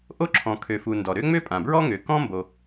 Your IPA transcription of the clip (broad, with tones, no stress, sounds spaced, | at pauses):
ʔ o˥ ǁʰ ɔ̃˩ kʰ ø˩ f u˩ n d ɔ˩ ɾ ø˥ ŋ͡m ø˥ pʼ ã˩ b ɹ ɔ˥ ŋ ø˩ k ɔ̃˥ m b o˩